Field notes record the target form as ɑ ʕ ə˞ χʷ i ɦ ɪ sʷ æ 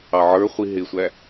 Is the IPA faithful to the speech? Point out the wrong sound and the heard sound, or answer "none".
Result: none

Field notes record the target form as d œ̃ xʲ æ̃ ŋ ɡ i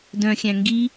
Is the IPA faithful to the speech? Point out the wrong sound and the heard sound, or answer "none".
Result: none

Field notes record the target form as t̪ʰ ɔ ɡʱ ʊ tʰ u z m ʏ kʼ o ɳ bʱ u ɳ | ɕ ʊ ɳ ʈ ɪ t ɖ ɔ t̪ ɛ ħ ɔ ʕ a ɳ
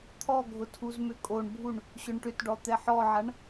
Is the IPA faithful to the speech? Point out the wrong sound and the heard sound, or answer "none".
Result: ɪ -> ʏ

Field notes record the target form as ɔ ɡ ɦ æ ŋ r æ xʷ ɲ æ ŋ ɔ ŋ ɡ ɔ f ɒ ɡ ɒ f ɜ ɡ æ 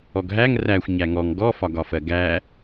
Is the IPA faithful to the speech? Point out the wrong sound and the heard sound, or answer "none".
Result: none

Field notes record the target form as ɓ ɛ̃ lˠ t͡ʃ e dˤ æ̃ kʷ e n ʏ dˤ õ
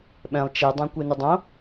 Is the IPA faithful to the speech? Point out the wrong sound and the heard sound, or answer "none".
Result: none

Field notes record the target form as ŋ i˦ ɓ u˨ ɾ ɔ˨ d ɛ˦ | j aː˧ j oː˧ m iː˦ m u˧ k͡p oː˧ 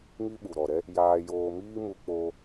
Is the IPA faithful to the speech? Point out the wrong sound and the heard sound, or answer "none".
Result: d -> ɾ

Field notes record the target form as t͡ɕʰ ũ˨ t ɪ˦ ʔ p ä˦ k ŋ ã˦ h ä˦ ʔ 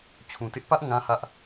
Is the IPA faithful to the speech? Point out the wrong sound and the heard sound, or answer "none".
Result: k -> ʔ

